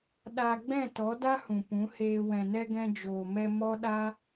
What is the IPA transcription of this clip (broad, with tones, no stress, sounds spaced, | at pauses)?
ɗ a˧ ɡ͡b ɛ̃˦˨ t ɔ˨˦ d a˦ h ũ˨ p ũ˨˦ h eː˧ w ɛ̃˨ n ɛ˧ ɡ ɛ̃˧ d͡ʒ oː˨ m ɛ˧ m ɔ˦ ɗ a˦